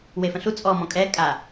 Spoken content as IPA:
wefə̃ɬu t͡sʼɔmɔ̃ kʼɛ kʼa

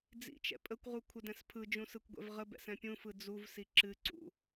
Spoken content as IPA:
d͡zḭt͡ʃɛ̰ pʼəkʷʁu kʷʰədɛ̃spʰɯd͡ʒũ sɯkʷɡʷɛ̰vʁəbɛ̰s ɛ̃pʲũfɯ d͡zuvsi ǁɨǀṵ

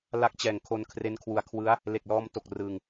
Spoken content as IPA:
la˦˥k̚t͡ɕɛː˨˩ŋkʰo˧n kʰre˦˥nkʰwu˧a̯ kʰwɯ˦˥a̯ | le˨˩k̚lɔː˧mto˨˩k̚ rɯ˧ŋ

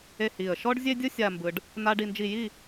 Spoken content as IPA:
e˥˧hi˧˩ə̯ ʃɔ˥ɖzʲe˥dʲɯ˥ sʲa˥˧mbɯ˧ɖ | na˥ɖi˥˧nd͡ʒi˥˧ ji˥˧

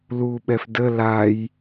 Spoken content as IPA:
luɓɛf də laj

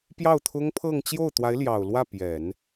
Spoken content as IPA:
pjɑ˥˩ʊ̯t̪ʰʊ˥ŋpʰɤ˥˧ŋ t͡ɕjo˥˩ʊ̯t̪wa˧˥ɪ̯ljɑ˨˩ʊ̯lwä˥˩ pjɛ˨˩˦n

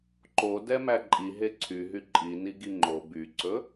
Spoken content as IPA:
ǃo dɛmæǃʼi ɦeǀʰyɦy ǃʼi niɡiŋ͡ǃo byǀɵ

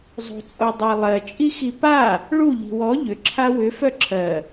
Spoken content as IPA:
zˤo̤t͡sʼodˤalˠɜ t͡ʃʼixipa | ɭu ʎi̤wɔ ʎʏ ǁʰawʏ fœǁʰɜ

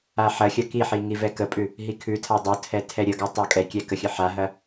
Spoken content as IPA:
aħɐxʲɐ kiħi ŋivɛkəpʼʉ | ɦikʰʉtʰa dˤotʰɛ tʰɛɾʲəɡa tˤakʼɛkʲɛ kəxʲəħaɦɐ

